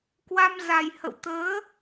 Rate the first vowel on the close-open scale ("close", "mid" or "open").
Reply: open